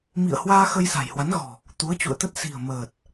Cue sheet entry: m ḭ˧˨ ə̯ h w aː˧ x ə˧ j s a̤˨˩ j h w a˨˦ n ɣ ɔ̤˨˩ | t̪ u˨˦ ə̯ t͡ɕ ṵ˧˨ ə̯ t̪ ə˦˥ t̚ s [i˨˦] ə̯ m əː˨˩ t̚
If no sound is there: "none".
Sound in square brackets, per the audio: i̤˨˩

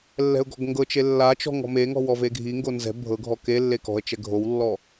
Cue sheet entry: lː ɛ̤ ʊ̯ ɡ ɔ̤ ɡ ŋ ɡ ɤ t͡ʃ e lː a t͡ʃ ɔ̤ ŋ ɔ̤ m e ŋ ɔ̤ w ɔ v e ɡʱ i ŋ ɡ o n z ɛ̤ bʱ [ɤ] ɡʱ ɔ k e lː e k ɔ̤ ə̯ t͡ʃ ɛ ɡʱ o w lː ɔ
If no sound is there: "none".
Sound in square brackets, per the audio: ɤ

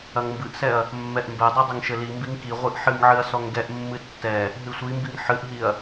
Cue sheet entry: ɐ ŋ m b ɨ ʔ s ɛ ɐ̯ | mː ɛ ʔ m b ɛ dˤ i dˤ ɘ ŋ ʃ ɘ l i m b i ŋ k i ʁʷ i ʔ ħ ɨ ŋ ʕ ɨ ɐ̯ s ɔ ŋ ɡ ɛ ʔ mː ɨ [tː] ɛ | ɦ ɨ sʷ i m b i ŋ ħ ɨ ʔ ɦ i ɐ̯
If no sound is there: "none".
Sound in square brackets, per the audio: tː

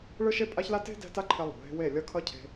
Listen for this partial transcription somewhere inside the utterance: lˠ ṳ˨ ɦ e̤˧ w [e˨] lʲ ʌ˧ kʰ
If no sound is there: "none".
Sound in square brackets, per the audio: e˦˨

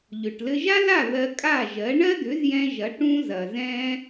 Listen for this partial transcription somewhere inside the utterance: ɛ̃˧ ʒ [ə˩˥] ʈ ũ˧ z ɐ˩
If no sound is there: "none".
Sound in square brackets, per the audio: ɐ˩˥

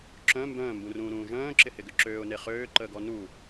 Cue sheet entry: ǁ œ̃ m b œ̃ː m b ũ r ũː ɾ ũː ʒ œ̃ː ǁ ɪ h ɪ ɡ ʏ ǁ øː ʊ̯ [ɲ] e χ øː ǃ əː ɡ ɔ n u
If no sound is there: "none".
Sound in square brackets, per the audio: n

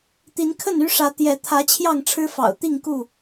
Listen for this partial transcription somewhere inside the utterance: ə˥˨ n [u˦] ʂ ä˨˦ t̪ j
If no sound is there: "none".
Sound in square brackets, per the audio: y˦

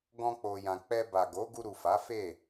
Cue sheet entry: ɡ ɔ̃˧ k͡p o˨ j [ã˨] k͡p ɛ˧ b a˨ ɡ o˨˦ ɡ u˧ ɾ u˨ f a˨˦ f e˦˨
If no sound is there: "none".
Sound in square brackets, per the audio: ã˨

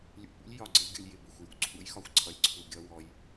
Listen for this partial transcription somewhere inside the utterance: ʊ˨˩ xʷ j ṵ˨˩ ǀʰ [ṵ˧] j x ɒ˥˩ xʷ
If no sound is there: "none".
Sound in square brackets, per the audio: ṵ˧˥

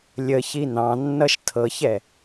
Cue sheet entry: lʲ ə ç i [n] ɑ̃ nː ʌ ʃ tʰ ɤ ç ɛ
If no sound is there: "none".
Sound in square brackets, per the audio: n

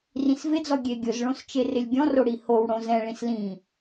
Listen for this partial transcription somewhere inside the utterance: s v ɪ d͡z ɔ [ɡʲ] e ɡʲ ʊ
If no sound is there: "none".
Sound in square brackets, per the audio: ɡʲ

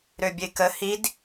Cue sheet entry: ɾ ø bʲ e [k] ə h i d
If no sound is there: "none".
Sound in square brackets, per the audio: k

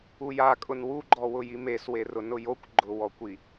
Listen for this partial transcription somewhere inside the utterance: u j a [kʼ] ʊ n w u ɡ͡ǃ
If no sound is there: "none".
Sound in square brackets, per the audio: kʼ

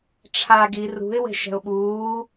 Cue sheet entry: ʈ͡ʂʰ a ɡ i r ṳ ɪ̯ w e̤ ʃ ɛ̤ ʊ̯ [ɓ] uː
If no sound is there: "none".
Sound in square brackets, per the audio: ɓ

